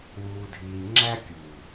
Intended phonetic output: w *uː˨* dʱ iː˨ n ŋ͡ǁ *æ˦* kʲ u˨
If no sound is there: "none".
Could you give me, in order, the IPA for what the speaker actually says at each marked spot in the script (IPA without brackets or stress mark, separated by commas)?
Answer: uː˨, æ˦